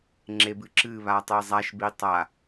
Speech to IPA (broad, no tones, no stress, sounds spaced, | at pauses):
ŋ͡ǁ e b ɨ ǁ ɨ β a tˤ e zˤ a ʃ b i tˤ a